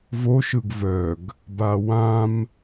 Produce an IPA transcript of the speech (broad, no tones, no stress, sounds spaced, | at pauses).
v o ʃ ɯ ɡ v œ ɡ | b a w ã m